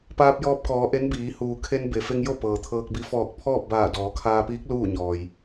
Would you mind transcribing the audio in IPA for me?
p aː˧ p̚ j ɔː˧ p̚ k ɔː˩˧ ʔ e˧˥ n b iː˩˧ h uː˩ kʰ e˧ n b e˩ f e˧ ŋ j o˥˨ p ɤː˩ t̪ʰ ɤː˧ k̚ b i˧ f ɔː˧˩ k̚ pʰ ɔː˥˨ p̚ b aː˧˩ d ɔː˩˧ kʰ aː˧ p iː˧˥ k̚ l uː˥˨ ɲ ɔː˩ j

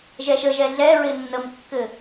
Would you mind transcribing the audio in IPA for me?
ʒ ɛ ʃ ə ʒ ɛ ɮ ɛ ɹ ɪ nː ə m kː ɘ

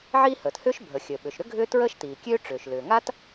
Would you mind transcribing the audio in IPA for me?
ʕ iː˥ h əː˩ t h ʏː˥ ʃ bʱ ə˩ xʲ əː˩ ɓ ʏ˩ ʃ ɾ ʏ˥ ɡʱ ʏː˥ t ɹ əː˥ ʃ t iː˩ kʲ øː˥ ʈ͡ʂ ʏː˩ ʃ l ʏː˩ ŋ a˥ t

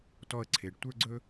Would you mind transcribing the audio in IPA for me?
t ɔ˧ ə̯ ǀʰ e˩ ɖ tʷ ə˞˥ ɡ͡ǀ ɵ˥

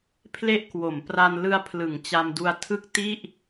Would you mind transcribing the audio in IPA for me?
pʰ l e˥˩ ʔ k w o˩˦ m p r a˧ n l ɯ˦˥ a̯ pʰ l ɯ˩˦ ŋ t͡ɕ a˧ m d u˧ a̯ tʰ ɯ˥˩ k̚ t i˥˩ ʔ

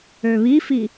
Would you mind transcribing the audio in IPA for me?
ø β i f i

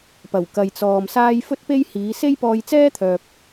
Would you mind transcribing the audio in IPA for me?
p ɐ˨˩ w k ɐ˨ j t͡s ɔː˨ m s aː˥ j f ɵ˥ t̚ p e˥ j h iː˨˧ s e˥ j p ɔː˧ j t͡s ɛː˥ t̪ʰ œː˨ p̚

